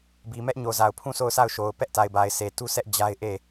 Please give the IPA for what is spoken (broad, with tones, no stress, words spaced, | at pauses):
bi˨ mɛ˦ʔɲo˨za˨ʊ̯pʰũ˦˨ so˦˨ʊ̯sʰa˦˨ʊ̯ʃo˨ʊ̯ pɛ˦ʔta˨ɪ̯ba˨ɪ̯ se˨tu˦sʰɛ˦ʔ d͡ʑa˦ɪ̯ʔe˦˨